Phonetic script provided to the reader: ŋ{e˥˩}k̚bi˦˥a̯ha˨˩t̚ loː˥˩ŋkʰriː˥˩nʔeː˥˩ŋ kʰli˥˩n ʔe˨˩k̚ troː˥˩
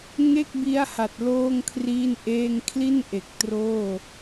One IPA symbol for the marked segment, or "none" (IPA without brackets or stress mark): e˥˩